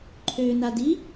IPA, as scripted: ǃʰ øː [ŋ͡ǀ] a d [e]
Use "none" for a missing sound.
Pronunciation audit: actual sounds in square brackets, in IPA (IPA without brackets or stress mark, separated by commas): n, i